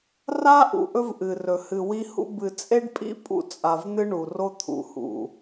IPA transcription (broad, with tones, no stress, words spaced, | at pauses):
ra˦ ʔṵ˨ʔɵ˦vʔɨ˨ rɵ˨hɨ˨wi˦hṵ˦ bɨ˨t͡sʼe˦ɖpʼḭ˦pʼṵ˨ t͡sʼa˨vn̪ɨ˦ ɳu˨ro˦ t̪ʰṵ˨hṵ˨